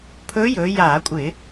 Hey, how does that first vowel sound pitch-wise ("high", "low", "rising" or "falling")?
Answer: rising